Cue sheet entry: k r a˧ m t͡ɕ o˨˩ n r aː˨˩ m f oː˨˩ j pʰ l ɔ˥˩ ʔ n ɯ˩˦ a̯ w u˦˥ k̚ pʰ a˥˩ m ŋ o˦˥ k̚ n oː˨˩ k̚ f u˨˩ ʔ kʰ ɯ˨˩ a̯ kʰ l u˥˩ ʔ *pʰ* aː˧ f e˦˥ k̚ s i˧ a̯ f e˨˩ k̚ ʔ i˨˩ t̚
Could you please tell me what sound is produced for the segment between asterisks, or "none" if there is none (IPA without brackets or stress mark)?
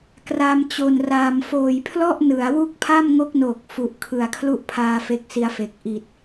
pʰ